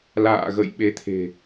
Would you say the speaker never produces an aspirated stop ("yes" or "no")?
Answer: no